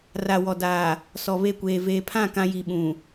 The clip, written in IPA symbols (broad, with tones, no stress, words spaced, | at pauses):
ra˨wɔ˨ daː˨ | sɔ˨βe˦˨kʷeː˨ veː˨pʰã˦˨ kã˦ji˨ɓũ˨